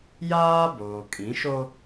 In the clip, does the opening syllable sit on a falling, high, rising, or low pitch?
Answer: high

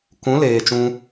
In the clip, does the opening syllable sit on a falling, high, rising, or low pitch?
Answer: rising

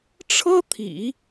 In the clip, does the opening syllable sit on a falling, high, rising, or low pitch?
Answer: high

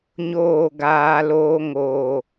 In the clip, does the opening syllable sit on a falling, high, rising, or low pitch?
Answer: falling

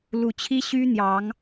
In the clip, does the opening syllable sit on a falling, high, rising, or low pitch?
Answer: rising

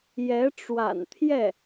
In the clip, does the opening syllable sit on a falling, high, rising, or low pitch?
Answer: rising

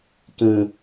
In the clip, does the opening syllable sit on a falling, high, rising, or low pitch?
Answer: low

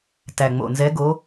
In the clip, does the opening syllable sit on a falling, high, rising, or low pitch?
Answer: low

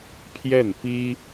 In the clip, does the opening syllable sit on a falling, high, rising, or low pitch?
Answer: falling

